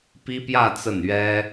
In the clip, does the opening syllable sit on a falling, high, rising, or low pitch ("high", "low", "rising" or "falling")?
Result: high